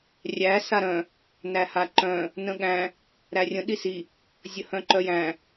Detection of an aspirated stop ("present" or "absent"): absent